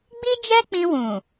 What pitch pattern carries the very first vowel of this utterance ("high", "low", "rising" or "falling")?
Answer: high